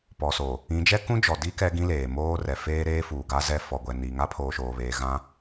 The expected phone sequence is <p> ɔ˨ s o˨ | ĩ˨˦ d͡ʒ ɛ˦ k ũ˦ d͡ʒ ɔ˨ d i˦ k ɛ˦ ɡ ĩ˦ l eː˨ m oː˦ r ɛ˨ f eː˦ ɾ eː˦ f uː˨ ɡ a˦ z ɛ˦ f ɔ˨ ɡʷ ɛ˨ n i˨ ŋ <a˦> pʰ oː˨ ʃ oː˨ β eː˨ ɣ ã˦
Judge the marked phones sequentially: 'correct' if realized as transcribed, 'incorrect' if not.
correct, correct

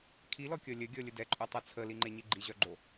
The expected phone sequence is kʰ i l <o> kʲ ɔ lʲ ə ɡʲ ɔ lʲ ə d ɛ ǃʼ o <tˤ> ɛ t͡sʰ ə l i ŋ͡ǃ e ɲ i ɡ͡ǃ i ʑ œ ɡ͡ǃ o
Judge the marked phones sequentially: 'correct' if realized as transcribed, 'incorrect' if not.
incorrect: ɔ, correct

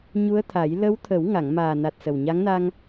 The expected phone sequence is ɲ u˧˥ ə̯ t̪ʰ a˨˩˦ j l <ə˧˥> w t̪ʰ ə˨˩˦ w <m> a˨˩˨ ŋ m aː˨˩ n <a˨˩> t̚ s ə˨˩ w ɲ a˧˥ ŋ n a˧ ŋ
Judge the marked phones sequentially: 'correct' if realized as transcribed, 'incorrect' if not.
correct, incorrect: ŋ, correct

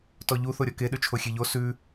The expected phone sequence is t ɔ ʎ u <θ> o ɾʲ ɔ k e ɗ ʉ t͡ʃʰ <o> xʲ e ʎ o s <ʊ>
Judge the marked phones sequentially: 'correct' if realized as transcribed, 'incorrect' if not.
correct, correct, incorrect: ʉ

